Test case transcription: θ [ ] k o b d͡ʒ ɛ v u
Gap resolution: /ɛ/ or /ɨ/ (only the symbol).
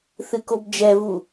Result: ɨ